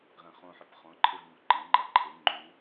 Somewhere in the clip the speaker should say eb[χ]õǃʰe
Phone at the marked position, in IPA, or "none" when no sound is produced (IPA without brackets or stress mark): χ